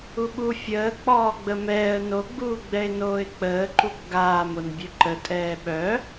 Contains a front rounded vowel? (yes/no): yes